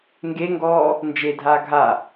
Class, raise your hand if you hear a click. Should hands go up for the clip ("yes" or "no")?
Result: no